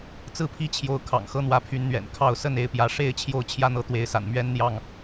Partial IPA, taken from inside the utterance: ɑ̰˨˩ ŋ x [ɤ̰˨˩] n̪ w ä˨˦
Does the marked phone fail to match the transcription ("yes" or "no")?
yes